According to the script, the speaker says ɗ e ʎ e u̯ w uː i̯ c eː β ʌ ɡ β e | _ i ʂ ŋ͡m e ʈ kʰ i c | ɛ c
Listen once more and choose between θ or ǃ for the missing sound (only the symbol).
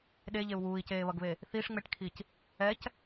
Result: θ